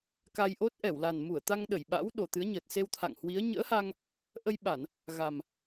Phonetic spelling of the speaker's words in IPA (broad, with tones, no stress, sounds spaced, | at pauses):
k a˧ j ʔ o˦˥ t̚ ʔ ɛ˧˩ w l a˨˩ n m u˧˩ ə̯ t̪ a˧ ŋ ɗ ə˧˩ j ɓ a̰˧˥ w ɗ o˨˩ t̪ ɨ˨˦ ə̯ ɲ əː˨˩ t̚ s e˧ w t̪ʰ a̰˧˨ ŋ h w i˨˦ ə̯ ɲ ə̰ː˧˥ h a˧ ŋ | ʔ ə˧ j ɓ a˧˩˨ n | ɣ a˨˩ m